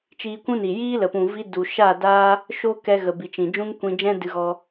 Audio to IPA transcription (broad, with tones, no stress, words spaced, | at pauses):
t͡ʃiː˧kʷũ˦ni˨ jiː˦lə˨pũ˨vi˧ du˨ ʃa˦˨daː˦ | ʃo˦kɛ˧ɣə˨ bi˨t͡ʃĩ˨ d͡ʒũ˦ŋ kʷĩ˧d͡ʒɛ̃˦ dɨ˧ɣɔ˧